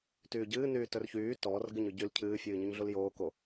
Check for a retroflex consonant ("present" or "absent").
absent